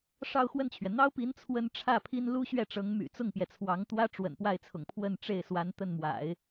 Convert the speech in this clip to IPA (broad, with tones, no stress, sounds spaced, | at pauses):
ʂ ɑ˥˧ ʊ̯ x w ə˥˩ n t͡ɕʰ ɥ ɛ˩ n̪ ɑ˥ ʊ̯ p i˧˥ n t͡sʰ w ə˥ n ʈ͡ʂʰ ä˥˩ pʰ i˥ n l u˥ ɕ ɥ ɛ˥˩ ʈ͡ʂ ɤ˧˥ ŋ m y̰˨˩ t͡s ʊ˥˩ ŋ p j ɛ˩ t͡sʰ w ɑ˧˥ ŋ t̪ w ä˥ ʈ͡ʂ w ə̰˨˩ n p w a˥˩ ɪ̯ t͡sʰ ʊ̰˨˩ ŋ pʰ w ə˥˧ n ʈ͡ʂ e˥˩ ɪ̯ s w a˧˥ n t̪ ə˥˩ n m w a̰˨˩˦ ɪ̯